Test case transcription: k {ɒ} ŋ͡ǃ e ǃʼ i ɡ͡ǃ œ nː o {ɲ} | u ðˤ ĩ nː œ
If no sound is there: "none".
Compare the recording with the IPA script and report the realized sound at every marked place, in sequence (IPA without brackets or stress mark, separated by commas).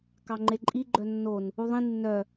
ɑ, n